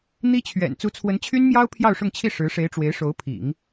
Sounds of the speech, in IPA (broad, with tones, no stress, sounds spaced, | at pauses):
n̪ i˥ t͡ɕʰ ɥ ɛ̰˨˩ n t͡s u˧˥ t͡sʰ w ə˧˥ n t͡ɕʰ y˥ n m j ɑ˥ ʊ̯ pʰ j ɑ˥˧ ʊ̯ ʂ ʊ˥˧ ŋ t͡ɕʰ i˥˩ ʂ ɻ̩˧˥ ʂ e˧˥ ɪ̯ ʈ͡ʂ w e˧˥ ɪ̯ ʂ o˧˥ ʊ̯ pʰ ḭ˨˩˦ ŋ